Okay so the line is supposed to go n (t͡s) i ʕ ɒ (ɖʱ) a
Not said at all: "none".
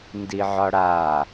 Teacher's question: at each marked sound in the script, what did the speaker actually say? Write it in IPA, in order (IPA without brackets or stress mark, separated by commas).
d, ɽ